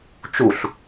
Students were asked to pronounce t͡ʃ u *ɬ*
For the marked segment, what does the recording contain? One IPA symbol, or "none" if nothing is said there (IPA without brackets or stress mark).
ɬ